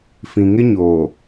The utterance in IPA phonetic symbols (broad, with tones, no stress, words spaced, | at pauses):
fĩ˨ ŋɪ˦ ɲoː˨